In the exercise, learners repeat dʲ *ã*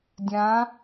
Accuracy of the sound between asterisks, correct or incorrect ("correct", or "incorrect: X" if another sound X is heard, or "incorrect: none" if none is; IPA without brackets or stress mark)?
correct